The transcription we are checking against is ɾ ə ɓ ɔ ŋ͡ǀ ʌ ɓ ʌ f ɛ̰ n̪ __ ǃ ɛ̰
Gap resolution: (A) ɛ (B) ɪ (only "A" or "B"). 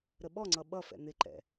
B